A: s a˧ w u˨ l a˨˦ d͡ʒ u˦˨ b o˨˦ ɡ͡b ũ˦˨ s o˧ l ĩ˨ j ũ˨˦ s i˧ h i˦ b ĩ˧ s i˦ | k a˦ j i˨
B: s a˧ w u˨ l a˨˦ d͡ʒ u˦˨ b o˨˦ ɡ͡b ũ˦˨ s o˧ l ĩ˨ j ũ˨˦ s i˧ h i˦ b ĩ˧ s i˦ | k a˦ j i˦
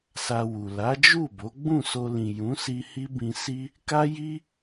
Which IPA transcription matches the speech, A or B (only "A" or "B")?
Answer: B